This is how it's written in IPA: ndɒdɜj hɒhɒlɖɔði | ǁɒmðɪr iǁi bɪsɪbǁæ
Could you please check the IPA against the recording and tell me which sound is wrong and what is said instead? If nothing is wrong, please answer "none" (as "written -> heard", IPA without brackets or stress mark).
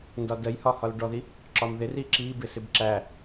none